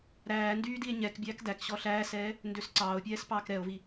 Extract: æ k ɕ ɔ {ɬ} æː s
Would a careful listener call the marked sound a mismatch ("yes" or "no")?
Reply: no